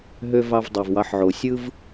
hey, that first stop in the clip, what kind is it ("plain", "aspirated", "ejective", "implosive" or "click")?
plain